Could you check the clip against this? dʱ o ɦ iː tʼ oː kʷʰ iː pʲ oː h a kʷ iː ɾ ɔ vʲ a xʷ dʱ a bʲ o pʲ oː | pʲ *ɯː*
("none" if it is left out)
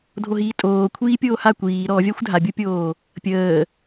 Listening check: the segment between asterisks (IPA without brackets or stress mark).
əː